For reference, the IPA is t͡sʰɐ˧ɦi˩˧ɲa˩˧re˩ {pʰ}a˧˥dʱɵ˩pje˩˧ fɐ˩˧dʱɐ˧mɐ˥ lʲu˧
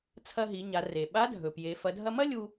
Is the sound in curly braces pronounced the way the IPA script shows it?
no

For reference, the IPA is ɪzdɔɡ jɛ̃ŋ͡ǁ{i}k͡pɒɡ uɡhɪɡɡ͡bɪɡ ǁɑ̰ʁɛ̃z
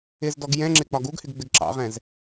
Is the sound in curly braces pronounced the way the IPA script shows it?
no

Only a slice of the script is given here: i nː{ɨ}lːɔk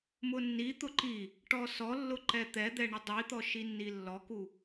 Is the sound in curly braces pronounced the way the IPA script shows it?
no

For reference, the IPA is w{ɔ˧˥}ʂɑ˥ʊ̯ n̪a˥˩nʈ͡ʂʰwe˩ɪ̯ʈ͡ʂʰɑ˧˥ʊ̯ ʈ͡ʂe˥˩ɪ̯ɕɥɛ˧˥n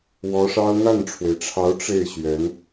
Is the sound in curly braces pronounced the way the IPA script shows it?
yes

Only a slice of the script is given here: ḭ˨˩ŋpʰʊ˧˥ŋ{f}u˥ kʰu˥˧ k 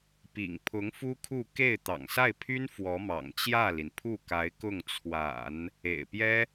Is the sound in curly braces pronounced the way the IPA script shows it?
yes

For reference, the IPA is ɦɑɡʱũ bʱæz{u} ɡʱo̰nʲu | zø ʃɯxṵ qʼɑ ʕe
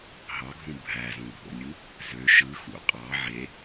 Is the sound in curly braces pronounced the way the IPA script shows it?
no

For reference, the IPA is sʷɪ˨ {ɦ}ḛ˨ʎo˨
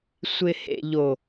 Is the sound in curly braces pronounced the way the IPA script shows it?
no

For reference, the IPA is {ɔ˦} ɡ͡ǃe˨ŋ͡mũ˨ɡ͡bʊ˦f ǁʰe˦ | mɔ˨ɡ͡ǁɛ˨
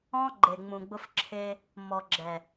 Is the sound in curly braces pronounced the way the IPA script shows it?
no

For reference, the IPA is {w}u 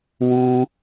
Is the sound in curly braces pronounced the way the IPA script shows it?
yes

